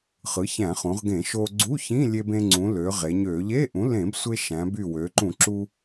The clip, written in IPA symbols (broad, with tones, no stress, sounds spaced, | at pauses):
χ ɯ˩˥ ç æ̃˧˩˧ χ ũ˩˧ ʁ ɡ ẽ˧˩˧ ʃ o˧ ɡ͡ǀ u˧˥˧ ç ĩ˧˥˧ lʲ e˧ b ẽ˧ ŋ͡ǀ ũ˩˧ l ø˩˧ ʁ e˩˧ ɲ ø˧˩˧ ʎ e˧˥˧ ʔ ũ˩˥ l ẽ˧˩˧ b sʷ e˧ ʃ æ̃˩˧ b y˧˩ w ø˩˧ ǃ ũ˧˩˧ ǁ u˧